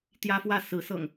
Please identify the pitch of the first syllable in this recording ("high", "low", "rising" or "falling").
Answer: high